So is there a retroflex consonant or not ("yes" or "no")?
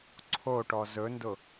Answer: yes